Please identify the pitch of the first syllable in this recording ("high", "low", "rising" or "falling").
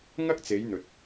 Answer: high